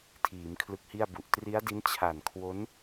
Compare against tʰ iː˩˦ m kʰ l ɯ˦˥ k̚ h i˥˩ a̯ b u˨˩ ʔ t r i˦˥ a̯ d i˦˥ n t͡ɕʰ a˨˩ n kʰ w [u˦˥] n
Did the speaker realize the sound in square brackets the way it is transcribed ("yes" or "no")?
no